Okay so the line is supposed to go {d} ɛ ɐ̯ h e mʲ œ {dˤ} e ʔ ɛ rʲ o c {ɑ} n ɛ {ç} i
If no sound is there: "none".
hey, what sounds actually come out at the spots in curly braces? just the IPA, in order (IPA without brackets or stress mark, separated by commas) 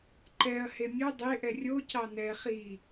ǃ, dˤ, ɑ, χ